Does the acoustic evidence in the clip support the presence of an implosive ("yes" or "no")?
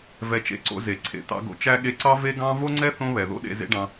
yes